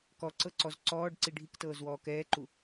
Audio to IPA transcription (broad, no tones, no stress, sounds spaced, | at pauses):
k ɔ ǀ ɤ ǀ ɔ z ǀ ɔː ɖ ǀ i ɖʱ i k t ɤː z w ɔː k ɛː ǃ u